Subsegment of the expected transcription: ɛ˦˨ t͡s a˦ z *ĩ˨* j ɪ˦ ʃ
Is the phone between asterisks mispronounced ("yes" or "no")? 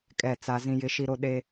yes